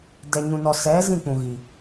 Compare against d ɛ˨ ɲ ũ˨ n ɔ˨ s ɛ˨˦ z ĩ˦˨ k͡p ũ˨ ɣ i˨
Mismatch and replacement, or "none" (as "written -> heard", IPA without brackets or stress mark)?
none